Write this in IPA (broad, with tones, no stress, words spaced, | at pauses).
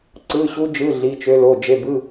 ǀɯ˧˥˧ɕu˦˥d͡ʒɯ˧˥˧ ɮi˧˥˧t͡ʃø˦˥lo˧˥˧ d͡ʒe˧˥˧bɯ˧˥˧